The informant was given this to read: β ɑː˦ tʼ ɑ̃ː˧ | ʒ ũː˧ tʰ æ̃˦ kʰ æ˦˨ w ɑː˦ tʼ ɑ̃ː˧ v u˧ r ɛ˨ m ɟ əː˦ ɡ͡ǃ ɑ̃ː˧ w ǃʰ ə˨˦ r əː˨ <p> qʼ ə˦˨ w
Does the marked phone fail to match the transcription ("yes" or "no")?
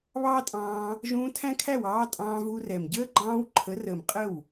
yes